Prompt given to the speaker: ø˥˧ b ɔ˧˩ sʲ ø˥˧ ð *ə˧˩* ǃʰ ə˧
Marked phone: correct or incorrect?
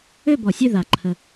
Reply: incorrect